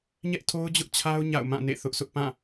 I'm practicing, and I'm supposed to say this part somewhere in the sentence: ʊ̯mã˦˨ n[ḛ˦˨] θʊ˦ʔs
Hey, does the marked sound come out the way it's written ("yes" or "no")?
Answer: yes